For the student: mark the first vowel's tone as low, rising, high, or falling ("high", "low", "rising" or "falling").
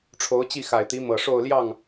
rising